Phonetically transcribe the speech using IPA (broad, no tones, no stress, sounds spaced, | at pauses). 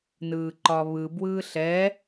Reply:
n ɯː ǃ ɒ β ɯ b w ɯː ɬ ɛ